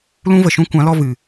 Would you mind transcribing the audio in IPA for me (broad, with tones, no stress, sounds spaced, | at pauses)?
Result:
l ũ˦ v ə˨ ʃ ũ˦ kʷ ã˨˦ l ɔ˧ v ɨ˨